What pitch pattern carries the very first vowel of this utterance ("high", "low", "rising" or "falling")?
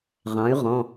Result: rising